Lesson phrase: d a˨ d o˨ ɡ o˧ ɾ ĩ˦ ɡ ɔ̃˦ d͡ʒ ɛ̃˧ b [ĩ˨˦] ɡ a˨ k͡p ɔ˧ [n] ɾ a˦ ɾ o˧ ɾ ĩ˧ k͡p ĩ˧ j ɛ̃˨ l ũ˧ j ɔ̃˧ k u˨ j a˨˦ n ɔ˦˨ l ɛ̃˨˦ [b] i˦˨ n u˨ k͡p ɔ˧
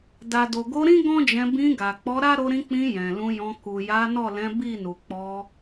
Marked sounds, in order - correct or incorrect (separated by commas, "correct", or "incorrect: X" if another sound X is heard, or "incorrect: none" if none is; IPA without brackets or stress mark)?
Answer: incorrect: ĩ˧, incorrect: none, correct